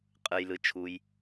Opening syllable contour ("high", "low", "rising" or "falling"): low